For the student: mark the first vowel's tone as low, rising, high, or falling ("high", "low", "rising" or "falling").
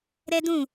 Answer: high